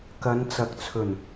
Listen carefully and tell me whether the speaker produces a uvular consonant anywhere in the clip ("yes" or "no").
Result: no